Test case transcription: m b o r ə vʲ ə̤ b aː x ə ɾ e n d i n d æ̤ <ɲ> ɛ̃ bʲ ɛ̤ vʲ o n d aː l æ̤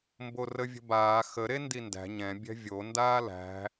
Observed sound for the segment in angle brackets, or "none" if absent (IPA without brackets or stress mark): ɲ